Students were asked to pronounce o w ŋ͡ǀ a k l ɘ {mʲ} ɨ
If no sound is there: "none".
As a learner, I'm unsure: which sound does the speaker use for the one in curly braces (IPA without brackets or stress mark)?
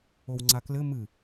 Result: m